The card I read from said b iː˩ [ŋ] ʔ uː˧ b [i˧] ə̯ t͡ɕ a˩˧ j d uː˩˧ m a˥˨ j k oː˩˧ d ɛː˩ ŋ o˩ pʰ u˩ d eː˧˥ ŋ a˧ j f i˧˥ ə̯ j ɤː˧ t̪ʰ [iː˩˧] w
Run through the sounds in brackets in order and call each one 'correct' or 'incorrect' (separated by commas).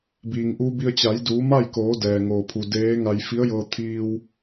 correct, correct, incorrect